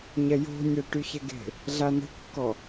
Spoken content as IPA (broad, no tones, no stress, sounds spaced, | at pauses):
ɲ ɛ j o̤ nʲ ɛ ʈ y ç ɛ ɡ e̤ | ɮ a n ə̤ kː ɔ